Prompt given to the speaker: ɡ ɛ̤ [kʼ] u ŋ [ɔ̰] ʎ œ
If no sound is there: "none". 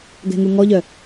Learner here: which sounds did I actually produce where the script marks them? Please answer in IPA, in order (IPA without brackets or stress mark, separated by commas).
ŋ, ɔ